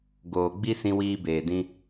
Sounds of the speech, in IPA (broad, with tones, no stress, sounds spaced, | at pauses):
ɡ oː˨ ɡ͡b i˧ s ĩ˧ w iː˧ b eː˨ d ĩ˧